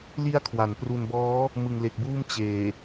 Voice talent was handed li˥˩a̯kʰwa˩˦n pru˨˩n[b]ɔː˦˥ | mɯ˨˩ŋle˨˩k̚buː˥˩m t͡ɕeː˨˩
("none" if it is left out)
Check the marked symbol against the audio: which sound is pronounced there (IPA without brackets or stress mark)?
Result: b